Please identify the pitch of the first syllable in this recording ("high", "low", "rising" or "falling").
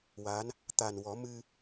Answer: rising